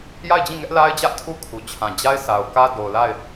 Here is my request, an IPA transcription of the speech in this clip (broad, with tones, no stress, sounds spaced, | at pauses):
j a˦˨ ɪ̯ d͡ʑ ĩ˦˨ ŋ ɛ˦ ʔ l a˦ ɪ̯ d͡ʑ ä˦ ʔ tʰ u˦ kʰ u˨ t͡ɕʰ ã˨ d͡ʑ a˦ ɪ̯ s a˨ ʊ̯ k ä˦ d o˨ ʊ̯ l a˦˨ ɪ̯